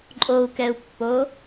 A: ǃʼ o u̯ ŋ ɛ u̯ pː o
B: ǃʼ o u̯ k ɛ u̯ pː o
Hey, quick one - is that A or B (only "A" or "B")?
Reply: B